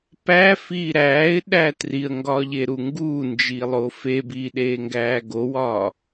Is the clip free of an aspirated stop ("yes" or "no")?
yes